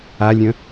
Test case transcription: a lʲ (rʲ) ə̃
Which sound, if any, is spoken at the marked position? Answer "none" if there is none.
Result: ɾʲ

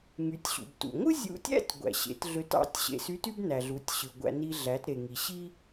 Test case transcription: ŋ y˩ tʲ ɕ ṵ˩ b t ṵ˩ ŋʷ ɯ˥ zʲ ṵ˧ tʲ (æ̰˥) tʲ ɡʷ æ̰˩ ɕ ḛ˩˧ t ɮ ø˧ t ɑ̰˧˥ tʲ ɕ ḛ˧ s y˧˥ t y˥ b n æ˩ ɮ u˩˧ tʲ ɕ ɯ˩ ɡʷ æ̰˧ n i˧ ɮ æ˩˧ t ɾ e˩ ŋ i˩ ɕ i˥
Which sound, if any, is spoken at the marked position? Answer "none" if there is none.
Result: æ̰˥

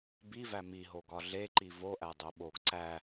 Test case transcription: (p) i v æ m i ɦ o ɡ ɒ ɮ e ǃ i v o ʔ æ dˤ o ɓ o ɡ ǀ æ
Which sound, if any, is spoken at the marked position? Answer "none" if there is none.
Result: b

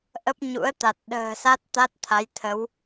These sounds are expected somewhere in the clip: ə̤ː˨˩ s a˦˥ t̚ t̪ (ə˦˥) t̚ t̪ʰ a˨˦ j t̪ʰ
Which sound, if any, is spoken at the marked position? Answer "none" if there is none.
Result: a˦˥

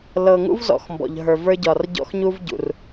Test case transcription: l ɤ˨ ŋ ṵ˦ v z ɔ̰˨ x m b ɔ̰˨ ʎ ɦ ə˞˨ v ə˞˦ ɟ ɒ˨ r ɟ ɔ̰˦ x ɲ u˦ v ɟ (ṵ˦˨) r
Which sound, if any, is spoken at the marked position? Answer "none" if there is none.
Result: ṵ˨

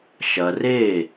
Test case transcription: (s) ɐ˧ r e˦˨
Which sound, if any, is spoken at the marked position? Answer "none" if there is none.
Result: ʃ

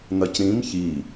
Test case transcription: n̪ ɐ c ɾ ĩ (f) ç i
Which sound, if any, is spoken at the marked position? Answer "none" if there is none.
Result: m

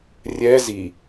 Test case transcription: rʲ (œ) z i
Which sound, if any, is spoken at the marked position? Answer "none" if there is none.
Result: ɛ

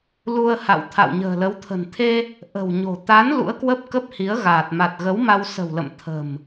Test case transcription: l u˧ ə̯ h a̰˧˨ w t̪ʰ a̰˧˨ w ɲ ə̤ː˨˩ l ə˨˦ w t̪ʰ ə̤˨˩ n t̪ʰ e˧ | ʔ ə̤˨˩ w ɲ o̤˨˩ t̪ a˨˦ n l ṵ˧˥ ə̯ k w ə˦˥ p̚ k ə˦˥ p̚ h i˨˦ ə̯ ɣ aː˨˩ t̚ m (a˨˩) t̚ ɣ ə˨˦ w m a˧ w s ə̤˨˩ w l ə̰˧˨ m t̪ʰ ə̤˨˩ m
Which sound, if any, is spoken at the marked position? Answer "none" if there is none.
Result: a˨˩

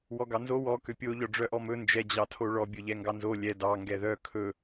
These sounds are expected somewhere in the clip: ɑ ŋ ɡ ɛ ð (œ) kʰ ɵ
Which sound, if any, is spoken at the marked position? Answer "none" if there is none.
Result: œ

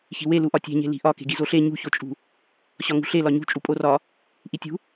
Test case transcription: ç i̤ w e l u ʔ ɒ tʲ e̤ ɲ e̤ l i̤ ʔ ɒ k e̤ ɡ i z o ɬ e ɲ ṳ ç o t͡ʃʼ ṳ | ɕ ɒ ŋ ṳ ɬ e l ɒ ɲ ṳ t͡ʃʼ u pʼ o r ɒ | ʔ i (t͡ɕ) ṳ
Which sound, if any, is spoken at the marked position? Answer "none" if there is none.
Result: tʲ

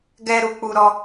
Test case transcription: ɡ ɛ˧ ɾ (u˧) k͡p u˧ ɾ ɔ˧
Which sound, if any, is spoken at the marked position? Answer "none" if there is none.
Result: u˧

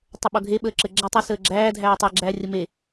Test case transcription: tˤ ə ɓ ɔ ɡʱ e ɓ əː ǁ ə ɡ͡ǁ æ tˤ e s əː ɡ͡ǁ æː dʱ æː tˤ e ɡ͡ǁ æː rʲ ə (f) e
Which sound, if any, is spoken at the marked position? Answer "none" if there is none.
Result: m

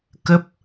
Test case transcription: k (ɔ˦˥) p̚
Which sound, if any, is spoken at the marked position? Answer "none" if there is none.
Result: ə˦˥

